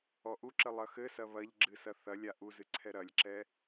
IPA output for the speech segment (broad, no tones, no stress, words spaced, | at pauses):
ɔʔuǁɘ lˠɐxɘsɐ βɐʎɡ͡ǁɨ sɐθɐlʲa ʔuzɨ ǀʰɛɾɐlʲǁɛ